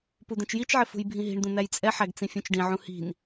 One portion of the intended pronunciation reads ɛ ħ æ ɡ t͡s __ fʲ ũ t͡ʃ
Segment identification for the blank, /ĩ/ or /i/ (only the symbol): ĩ